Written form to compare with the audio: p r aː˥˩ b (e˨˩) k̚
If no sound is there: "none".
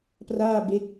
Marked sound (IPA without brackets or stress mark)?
e˦˥